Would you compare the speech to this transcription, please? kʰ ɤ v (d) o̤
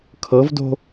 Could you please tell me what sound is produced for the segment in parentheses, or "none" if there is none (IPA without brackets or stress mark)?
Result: d